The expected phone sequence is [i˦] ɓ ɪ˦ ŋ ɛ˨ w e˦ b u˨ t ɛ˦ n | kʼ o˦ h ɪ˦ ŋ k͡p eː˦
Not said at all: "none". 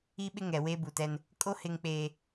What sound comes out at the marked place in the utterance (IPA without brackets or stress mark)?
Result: i˦